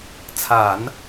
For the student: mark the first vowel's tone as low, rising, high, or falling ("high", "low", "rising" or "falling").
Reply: low